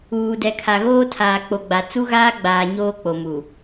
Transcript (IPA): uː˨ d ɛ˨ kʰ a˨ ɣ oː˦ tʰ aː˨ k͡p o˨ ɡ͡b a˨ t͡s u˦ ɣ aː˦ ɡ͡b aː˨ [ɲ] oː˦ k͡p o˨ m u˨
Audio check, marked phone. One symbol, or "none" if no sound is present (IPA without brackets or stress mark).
ɲ